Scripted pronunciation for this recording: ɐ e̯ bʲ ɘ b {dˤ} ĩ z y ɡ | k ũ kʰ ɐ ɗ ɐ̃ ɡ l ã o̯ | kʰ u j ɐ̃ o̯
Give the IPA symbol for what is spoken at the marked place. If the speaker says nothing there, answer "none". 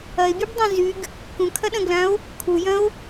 dˤ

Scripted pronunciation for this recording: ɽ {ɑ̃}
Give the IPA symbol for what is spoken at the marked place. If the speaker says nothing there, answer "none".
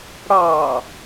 ɑ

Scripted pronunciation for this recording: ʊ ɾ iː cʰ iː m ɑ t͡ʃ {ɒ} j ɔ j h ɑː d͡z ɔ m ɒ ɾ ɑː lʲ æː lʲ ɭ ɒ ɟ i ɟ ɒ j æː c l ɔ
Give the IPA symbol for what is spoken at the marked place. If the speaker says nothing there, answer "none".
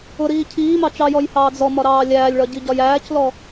ɑ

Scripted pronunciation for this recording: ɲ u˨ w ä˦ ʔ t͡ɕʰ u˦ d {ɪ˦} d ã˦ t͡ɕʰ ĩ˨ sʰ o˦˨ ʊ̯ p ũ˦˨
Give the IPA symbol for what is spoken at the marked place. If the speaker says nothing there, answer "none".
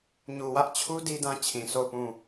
i˦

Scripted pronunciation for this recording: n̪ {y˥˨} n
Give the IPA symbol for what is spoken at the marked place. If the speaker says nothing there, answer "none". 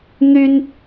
y˦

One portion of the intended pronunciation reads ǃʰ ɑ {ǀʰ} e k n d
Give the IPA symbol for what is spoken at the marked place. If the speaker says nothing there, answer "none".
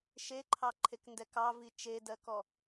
ǃʰ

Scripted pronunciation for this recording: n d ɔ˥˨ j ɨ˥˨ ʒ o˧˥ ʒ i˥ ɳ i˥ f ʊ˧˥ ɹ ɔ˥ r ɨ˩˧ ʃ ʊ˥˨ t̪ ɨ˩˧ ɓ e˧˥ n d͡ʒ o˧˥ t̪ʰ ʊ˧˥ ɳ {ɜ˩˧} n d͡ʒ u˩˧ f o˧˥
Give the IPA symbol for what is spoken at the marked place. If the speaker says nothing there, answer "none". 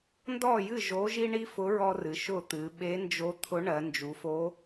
ɜ˩˧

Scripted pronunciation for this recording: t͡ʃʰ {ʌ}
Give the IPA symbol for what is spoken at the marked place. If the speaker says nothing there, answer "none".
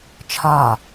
ɒ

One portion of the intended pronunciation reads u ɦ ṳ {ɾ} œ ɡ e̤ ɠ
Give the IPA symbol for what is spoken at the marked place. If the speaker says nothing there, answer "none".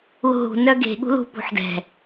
n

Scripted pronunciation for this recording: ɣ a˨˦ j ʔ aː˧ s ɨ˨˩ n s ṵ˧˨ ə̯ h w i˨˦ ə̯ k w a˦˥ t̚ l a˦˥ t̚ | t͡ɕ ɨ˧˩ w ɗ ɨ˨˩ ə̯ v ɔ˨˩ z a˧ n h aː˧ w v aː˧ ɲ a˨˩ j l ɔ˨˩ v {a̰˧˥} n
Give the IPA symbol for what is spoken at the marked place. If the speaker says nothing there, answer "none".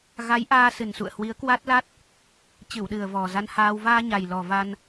a˧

